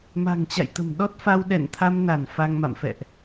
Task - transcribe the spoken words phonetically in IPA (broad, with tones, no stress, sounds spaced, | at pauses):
m a̤˨˩ ŋ t͡ɕ a̰˧˨ j t̪ ə̤˨˩ m ɗ ɔ˦˥ t̚ f a˧ w ɗ ɛ̰˧˨ n t̪ʰ a˧ m n a˧˩ n f a˧ ŋ m a̰˧˨ m f ɛ̰˧˨ ʔ